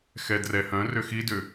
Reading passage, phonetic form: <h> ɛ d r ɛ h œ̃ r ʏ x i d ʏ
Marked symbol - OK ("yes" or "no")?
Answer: no